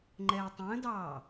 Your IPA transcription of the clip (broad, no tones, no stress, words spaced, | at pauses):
ŋ͡ǃɛːtˤə̃ːdɑː